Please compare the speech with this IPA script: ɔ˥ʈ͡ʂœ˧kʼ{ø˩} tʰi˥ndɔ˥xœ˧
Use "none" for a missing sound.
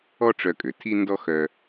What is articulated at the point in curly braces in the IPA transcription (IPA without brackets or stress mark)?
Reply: ø˩